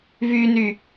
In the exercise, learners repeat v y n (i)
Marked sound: incorrect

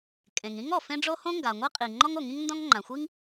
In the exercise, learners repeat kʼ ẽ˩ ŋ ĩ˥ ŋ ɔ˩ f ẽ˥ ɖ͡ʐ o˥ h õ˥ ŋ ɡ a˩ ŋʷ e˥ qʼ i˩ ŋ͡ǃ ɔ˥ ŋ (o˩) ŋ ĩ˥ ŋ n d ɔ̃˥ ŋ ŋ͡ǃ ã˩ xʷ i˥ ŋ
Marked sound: correct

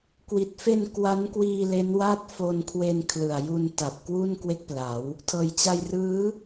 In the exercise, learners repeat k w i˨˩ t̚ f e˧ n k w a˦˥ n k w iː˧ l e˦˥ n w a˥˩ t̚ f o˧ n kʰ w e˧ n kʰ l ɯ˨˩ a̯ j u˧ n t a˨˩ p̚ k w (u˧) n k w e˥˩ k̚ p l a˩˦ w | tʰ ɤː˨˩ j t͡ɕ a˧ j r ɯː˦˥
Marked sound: incorrect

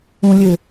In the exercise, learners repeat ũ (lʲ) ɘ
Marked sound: correct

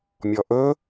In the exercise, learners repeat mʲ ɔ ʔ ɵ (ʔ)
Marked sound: incorrect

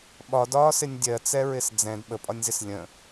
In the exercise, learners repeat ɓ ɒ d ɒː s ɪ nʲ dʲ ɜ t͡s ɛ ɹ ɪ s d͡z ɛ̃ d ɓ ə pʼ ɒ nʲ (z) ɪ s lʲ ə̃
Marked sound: correct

